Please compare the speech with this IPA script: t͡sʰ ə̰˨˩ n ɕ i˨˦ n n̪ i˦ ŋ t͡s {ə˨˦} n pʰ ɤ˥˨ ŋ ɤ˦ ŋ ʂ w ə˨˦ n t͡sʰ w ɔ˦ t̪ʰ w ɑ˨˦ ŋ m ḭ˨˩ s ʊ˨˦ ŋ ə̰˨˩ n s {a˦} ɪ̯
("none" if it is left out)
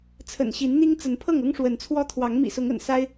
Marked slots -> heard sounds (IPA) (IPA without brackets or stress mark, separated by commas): ə˨˦, a˦